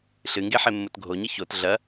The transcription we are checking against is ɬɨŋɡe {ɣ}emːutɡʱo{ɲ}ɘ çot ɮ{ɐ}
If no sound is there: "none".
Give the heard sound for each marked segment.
ħ, ɲ, ɐ

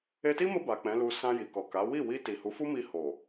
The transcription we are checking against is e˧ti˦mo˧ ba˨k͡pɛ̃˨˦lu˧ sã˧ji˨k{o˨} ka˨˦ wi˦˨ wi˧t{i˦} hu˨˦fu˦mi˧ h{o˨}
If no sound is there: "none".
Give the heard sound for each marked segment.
ɔ˨, i˨, o˨

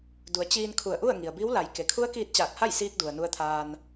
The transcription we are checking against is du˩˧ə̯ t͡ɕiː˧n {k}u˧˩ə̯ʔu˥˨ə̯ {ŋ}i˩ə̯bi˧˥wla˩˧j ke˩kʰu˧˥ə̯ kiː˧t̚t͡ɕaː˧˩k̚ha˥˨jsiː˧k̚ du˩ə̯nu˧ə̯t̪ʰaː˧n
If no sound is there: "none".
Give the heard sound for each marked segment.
kʰ, ŋ

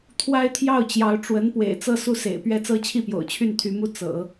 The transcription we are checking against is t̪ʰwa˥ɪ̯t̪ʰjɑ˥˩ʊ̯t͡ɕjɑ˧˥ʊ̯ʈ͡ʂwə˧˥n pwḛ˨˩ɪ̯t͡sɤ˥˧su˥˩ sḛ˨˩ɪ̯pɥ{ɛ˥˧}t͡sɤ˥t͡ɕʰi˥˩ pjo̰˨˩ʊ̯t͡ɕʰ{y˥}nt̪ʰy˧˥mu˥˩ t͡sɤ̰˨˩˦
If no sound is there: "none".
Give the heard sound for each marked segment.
ɛ˥, y˥˩

